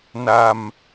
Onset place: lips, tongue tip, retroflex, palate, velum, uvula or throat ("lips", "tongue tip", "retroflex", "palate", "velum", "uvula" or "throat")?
tongue tip